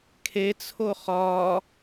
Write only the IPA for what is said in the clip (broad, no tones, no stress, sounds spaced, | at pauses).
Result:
kʰ e t͡sʰ o χ ɒ